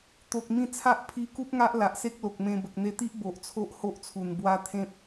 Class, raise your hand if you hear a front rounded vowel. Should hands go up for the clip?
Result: no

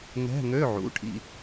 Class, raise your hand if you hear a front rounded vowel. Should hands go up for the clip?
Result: yes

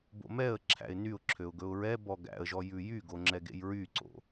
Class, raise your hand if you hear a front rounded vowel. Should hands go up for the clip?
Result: yes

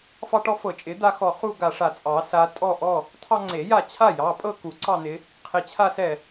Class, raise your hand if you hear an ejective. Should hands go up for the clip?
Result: yes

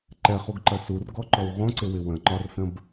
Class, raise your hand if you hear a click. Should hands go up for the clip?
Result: yes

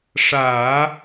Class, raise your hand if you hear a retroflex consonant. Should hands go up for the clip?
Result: yes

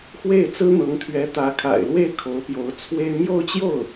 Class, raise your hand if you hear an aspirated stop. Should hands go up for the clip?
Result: yes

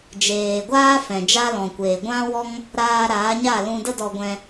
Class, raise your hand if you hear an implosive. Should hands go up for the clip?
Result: no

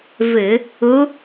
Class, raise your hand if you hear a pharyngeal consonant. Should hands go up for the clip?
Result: no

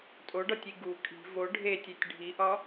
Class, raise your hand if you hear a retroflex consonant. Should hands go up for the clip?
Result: yes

